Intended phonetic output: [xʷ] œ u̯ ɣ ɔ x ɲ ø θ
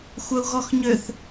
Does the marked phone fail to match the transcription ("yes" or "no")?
no